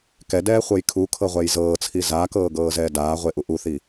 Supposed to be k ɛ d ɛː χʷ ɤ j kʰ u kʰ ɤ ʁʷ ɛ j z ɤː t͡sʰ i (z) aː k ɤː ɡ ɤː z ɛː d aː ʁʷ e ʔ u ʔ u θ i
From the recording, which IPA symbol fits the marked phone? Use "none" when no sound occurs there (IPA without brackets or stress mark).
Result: z